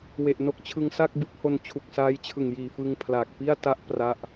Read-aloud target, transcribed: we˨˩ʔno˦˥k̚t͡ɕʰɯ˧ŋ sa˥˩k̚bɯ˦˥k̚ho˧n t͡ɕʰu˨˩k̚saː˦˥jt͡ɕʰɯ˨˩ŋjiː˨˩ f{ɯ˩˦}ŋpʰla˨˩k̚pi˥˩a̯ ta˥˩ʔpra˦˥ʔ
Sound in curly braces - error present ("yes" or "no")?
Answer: yes